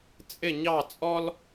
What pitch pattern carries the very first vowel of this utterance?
falling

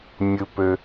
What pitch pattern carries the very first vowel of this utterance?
low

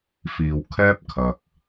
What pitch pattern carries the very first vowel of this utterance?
low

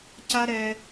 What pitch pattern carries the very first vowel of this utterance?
high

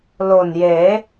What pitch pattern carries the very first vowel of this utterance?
low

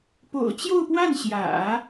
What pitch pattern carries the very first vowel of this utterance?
low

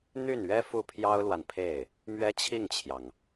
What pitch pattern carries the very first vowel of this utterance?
falling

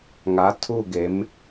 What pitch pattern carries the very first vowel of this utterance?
rising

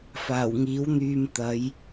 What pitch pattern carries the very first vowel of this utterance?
low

